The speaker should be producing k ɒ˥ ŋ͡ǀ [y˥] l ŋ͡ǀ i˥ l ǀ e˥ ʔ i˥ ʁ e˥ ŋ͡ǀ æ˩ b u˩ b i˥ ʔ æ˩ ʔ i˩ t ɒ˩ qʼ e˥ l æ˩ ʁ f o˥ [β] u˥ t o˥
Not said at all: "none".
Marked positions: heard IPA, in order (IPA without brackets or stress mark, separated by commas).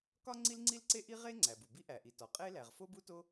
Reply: i˥, b